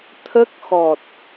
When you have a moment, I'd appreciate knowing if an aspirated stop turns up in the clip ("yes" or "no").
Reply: yes